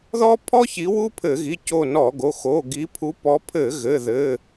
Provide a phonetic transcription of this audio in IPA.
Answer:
ðɔ˥ pʰɔ˥çi˨˦ wu˥pʰɘ˧˩˧ɣi˩˧˩ co˦˨nɔ˧˩˧ɡo˩˧˩ xo˩˧˩ ɡi˨˦ pʰu˨˦ pɔ˨˦pʰɘ˧˩˧ ɣɘ˩˧˩ ðɘ˩˧˩

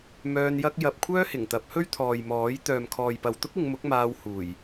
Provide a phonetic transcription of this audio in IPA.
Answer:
mœː˧njɐ˥k̚ jɐ˧p̚kʷʰœː˥hɪ˨˩ŋ t̪ɐ˨˥p̚hɵ˥ɥt̪ʰɔː˨j mɔː˨˥j t̪œː˨mkʰɔː˨j pɐ˨wt̪ʊ˥k̚ɪ˨˧ŋmʊ˨˥k̚ maː˧w huː˨˩j

